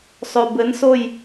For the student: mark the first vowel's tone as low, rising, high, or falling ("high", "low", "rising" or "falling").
low